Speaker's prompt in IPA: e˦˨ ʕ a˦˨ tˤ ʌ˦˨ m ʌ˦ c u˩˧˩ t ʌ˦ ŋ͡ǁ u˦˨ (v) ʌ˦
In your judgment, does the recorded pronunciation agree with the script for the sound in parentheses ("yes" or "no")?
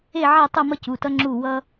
no